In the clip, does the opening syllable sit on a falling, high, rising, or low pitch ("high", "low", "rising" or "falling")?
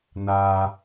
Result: low